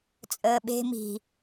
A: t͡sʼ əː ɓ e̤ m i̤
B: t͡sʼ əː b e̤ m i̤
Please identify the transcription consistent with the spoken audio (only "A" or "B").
A